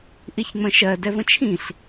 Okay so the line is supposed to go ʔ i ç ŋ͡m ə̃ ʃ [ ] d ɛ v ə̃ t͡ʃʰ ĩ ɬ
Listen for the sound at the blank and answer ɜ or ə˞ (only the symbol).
ɜ